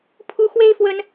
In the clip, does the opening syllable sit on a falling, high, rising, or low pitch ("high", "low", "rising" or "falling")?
high